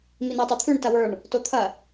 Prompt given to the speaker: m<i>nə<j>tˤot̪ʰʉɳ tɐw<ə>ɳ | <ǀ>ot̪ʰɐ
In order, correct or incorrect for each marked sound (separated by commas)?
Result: correct, correct, incorrect, incorrect